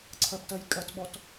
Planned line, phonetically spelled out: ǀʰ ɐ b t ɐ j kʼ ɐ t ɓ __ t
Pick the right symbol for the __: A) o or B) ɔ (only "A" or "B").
B